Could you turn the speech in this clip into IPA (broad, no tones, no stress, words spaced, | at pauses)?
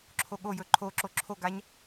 ǁʰoɠojɵ ǃʰo ǁoǁʰoɡaɲ